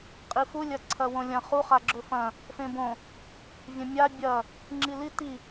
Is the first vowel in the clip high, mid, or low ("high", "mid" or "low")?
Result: high